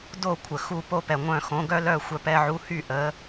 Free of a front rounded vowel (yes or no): no